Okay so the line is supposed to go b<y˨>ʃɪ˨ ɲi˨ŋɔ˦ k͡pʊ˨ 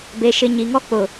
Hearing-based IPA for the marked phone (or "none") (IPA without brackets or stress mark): e˨